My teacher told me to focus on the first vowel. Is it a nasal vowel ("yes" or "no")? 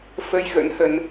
no